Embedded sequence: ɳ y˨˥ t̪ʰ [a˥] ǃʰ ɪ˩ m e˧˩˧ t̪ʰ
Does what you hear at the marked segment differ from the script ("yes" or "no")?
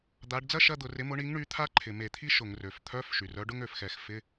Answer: no